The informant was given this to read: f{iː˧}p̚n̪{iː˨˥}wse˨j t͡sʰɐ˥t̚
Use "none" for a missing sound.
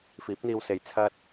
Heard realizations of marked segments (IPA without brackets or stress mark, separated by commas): iː˨˥, iː˧